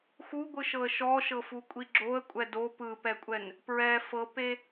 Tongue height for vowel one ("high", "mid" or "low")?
high